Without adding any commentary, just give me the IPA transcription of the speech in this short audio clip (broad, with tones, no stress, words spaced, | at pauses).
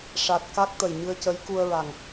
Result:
ʂa˨˩t̚ ka˦˥k̚ t̪ə˨˩jɲɨ˧ə̯cə˧˥j ku˧ə̯ɹa˨˩ŋ